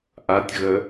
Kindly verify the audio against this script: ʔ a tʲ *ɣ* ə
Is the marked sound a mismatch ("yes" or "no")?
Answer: no